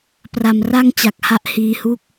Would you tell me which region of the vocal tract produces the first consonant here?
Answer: lips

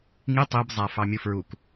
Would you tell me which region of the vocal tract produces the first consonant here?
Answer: velum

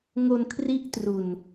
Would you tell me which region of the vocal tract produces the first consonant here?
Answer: velum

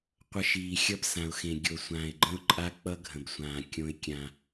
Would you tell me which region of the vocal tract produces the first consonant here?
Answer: uvula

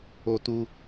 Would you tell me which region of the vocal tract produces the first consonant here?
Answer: tongue tip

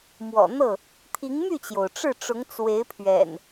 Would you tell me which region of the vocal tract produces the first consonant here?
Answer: lips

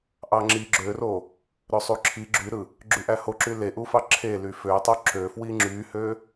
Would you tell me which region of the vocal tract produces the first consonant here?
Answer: throat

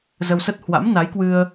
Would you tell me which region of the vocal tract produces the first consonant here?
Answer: tongue tip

